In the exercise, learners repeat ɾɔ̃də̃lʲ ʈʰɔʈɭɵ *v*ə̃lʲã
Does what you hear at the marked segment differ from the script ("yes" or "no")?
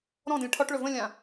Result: no